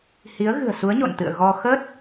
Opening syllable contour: rising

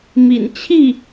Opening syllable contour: low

